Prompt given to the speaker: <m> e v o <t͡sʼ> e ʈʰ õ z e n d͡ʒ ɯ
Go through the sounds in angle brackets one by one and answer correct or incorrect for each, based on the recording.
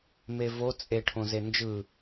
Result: correct, correct

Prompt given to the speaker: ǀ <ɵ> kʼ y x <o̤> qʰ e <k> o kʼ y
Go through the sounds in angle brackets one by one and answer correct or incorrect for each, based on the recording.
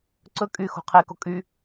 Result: correct, correct, correct

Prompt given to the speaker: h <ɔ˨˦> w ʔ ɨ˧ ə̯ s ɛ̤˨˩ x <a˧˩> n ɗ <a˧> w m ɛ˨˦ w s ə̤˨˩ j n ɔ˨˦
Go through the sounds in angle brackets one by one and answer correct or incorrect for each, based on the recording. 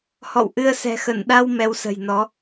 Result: incorrect: ɔ̰˧˨, incorrect: ə˧˩, correct

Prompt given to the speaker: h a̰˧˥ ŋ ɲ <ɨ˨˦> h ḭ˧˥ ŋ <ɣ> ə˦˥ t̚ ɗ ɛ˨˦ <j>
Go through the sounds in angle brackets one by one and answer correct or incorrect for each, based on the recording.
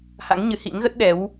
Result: correct, correct, incorrect: w

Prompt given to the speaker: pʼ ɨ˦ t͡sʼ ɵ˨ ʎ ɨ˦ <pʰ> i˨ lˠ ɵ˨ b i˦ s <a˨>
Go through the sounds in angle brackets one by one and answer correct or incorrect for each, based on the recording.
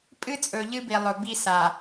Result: incorrect: b, correct

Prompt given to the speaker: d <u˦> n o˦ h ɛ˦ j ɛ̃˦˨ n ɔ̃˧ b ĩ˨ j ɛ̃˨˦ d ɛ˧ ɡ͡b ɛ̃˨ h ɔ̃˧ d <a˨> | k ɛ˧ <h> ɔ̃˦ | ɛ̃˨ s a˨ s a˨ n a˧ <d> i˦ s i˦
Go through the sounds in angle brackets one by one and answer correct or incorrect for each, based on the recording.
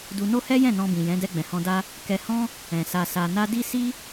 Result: incorrect: u˧, incorrect: a˦, correct, correct

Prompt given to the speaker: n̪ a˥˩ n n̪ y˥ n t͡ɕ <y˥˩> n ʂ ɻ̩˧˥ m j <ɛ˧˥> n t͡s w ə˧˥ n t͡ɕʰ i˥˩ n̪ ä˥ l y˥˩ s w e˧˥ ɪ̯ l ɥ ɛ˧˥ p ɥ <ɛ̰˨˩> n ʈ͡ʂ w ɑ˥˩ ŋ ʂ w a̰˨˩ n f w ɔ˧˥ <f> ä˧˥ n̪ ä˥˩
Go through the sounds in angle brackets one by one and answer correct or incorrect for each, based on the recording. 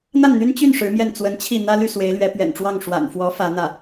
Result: correct, incorrect: ɛ˥˩, correct, correct

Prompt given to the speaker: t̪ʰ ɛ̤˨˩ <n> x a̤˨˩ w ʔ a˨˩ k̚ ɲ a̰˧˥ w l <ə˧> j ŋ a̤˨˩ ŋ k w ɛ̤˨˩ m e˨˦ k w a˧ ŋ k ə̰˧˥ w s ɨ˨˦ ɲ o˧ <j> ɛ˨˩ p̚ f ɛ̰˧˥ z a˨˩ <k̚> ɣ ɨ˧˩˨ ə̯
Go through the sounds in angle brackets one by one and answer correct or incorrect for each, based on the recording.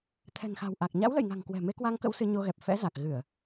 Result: incorrect: ŋ, incorrect: ə̰˧˨, incorrect: ɣ, correct

